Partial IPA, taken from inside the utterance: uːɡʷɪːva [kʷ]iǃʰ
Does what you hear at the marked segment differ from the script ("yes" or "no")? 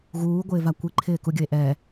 no